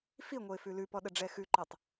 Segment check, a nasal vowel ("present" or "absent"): absent